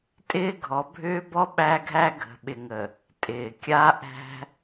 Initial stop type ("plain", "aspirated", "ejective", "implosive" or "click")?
ejective